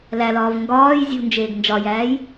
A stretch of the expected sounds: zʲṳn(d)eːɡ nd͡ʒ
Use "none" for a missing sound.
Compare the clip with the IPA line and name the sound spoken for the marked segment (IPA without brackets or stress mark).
d͡ʒ